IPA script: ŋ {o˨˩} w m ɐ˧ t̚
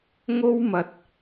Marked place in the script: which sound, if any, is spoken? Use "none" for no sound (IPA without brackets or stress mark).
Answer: o˥